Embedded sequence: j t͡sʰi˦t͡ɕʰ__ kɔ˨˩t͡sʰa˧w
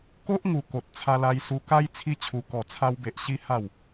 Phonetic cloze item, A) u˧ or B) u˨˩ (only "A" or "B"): A